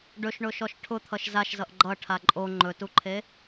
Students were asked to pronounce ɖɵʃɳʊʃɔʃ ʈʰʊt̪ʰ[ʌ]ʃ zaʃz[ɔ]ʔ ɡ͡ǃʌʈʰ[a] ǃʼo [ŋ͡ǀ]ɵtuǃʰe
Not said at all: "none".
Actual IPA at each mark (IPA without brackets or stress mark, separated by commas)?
ʌ, ʌ, a, ŋ͡ǃ